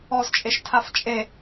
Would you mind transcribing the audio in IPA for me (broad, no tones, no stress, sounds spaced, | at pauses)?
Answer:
ɔ z t͡ʃʼ e ʃ tʰ a f t͡ʃʼ e